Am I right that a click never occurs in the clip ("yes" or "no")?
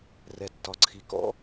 no